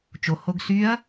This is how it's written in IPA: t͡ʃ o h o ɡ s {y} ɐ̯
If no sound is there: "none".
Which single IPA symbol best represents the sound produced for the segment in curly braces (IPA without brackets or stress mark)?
y